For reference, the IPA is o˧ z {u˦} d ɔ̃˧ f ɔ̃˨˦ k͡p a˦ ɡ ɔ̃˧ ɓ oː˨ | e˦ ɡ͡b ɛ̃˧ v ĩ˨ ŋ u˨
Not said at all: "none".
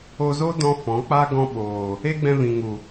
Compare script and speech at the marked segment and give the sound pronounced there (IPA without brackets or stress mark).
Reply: o˦